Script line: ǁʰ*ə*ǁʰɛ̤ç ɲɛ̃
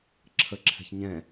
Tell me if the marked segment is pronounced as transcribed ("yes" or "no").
yes